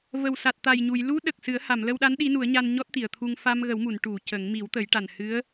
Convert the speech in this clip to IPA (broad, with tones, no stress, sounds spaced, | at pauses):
v ə˨˩ w s a˨˩ t̚ t̪ a˨˩ j ɲ u˨˩˨ j l u˧˥ ɗ ə˨˩ k̚ s ɨ˨˩˦ ə̯ h a˨˩˨ m l ə˧ w ɗ a˧˥ n ɗ i˧˥ n u˨˩˦ ə̯ ɲ a˧ n ɲ ɔ˦˥ t̚ t̪ i˨˩˨ ə̯ t̪ʰ u˧ ŋ f a˧ m ɣ ə˨˩˦ w m u˨˩˨ n ʈ u˨˩˨ c ə˨˩˦ ŋ m i˨˩˦ w t̪ ə˨˩˦ j ʈ a˨˩ n h ɨ˧˥ ə̯